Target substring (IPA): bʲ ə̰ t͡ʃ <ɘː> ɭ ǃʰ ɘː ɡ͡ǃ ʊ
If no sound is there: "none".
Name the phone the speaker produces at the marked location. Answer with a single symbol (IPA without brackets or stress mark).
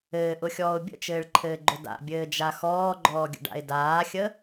ɘː